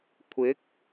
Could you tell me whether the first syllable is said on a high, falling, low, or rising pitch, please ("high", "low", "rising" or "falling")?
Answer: rising